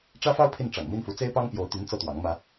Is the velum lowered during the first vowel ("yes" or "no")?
no